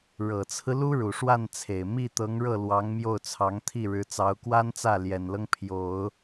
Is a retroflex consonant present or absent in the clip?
present